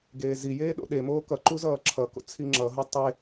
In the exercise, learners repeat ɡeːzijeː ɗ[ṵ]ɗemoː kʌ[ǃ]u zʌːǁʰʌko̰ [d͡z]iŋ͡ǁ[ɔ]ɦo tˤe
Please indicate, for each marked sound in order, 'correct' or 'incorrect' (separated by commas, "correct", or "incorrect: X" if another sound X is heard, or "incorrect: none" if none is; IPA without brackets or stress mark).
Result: incorrect: o̰, correct, incorrect: t͡sʰ, incorrect: ʌ